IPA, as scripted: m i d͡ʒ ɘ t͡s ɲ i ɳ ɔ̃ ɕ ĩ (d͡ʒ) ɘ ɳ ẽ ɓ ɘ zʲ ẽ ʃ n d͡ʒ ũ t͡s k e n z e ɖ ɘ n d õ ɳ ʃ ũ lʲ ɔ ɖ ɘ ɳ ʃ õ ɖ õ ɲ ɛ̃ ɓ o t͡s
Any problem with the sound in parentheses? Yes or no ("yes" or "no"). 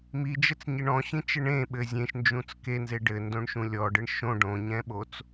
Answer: yes